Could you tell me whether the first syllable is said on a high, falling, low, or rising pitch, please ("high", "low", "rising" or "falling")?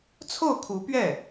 falling